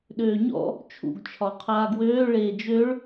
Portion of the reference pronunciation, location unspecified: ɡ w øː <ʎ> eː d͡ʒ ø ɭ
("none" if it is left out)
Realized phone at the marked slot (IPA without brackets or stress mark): ɭ